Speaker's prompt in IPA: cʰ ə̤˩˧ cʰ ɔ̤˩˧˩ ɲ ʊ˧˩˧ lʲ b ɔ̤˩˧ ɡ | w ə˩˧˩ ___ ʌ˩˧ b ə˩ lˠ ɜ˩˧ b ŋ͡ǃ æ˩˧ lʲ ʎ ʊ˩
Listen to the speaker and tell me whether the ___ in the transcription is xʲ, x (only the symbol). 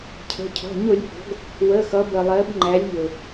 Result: x